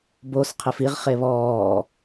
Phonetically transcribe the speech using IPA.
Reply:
b o s qʰ ɪ f i ʁ χ e β ɔː

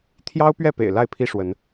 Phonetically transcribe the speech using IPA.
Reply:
t̪ʰ j ɑ˦ ʊ̯ p ɥ ɛ˥˨ p ḛ˨˩ ɪ̯ l a˥˨ ɪ̯ pʰ i˦ ʂ w ə˨˦ n

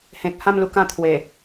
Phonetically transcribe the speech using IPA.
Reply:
h ẽ˨ k̚ h ã˥˧ m l u˧ k ã˥˧ t̪ʰ w e˨˩

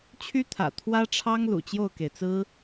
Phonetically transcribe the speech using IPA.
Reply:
t͡ɕʰ y˥ t̪ʰ ä̰˨˩ t̪ʰ w ä˥ ʈ͡ʂʰ ɑ˥ ŋ l ṵ˨˩ t͡ɕ j o˥˩ ʊ̯ k e˩ ɪ̯ t͡s ɹ̩˥

